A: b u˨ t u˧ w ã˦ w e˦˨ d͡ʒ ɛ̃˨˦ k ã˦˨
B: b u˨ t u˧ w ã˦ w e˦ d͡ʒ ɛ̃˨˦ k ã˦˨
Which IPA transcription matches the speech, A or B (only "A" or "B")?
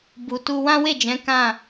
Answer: A